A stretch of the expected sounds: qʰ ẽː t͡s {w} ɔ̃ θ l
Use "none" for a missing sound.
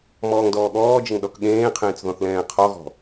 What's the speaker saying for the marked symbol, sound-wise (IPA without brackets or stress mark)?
ð